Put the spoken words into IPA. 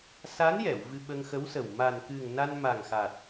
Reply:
s a˧˥ n j ɛ˨˩˨ w v ɨ˧ ɓ ə˧ ŋ x ə˧˥ w s ə˨˩ w m a˨˩ n k ɨ˨˩ ŋ n a˧ n m a˨˩ ŋ x a˨˩ t̚

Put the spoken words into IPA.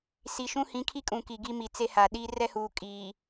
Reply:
s i˨ ʃ ũ˦ h ĩ˨˦ kʰ i˦ kʼ ũ˨ k i˨ ɡ i˦ m i˨ t͡s e˦ h a˨ ɗ i˦ r ɛ˦ h uː˨ kʼ iː˨

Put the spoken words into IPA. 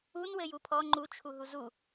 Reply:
u n w ɘ j u pʰ ɔ ŋ͡ǃ u t͡ʃʰ u ɦ u z u

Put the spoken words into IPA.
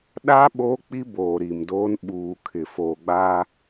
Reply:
ɗ a˦ ɓ oː˦ k͡p i˦ b oː˨ ɾ i˨ m d oː˦ n ɓ uː˨ kʰ ɪ˨ f oː˨ ɡ͡b a˦

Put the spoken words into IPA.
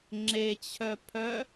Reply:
ŋ͡ǁ e t͡ɕʰ œ pʰ œ

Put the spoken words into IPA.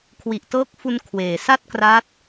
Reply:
kʰ w i˨˩ ʔ t ɤː˦˥ k̚ f u˧ n kʰ w eː˨˩ s a˥˩ t̚ k r a˦˥ t̚

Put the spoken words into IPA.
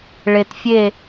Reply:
ɭ e˨ t fʲ e˦˨

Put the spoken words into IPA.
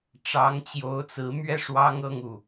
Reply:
ʈ͡ʂ ɑ˧˥ ŋ t͡ɕ j o˧˥ ʊ̯ t͡s ɹ̩˧˥ m ɥ ɛ˥˩ ʂ w ɑ˥ ŋ ɤ˥˧ ŋ u˥˩

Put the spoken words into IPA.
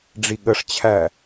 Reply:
ɖ͡ʐ i ɠ ə ʂ t͡ɕʰ æ

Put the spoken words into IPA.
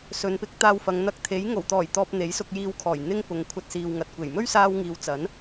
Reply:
s ɵ˨˧ n p ɪ˨˥ k̚ t̪ aː˧ w f ɐ˨˧ ŋ n̪ ɐ˧ k̚ t̪ʰ e˨˥ j ŋ o˨˩ w t̪ ɔː˨˩ j t̪ ɔː˨ p̚ n̪ e˨˥ j s ʊ˧ k̚ j iː˧ w kʰ ɔː˨˩ j n̪ ɪ˥ ŋ p ʊ˨˧ ŋ kʷʰ ɐ˧ t̚ s iː˨ w ŋ ɐ˨ t̚ kʷ e˨˩ j m ɵ˥ ɥ s aː˧ w ŋ iː˨ w t͡s ɐ˨˥ n

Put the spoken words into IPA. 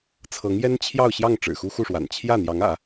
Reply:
t͡sʰ ɤ˧˥ ŋ j ɛ˥ n t͡ɕʰ j ɑ˥˧ ʊ̯ ɕ j ɑ˥˩ ŋ ʈ͡ʂ ɻ̩˨˩ x u˥ x u˥˩ ʂ w a̰˨˩ n t͡ɕʰ j ä˥˩ n̪ j ɑ˧˥ ŋ ä̰˨˩˦

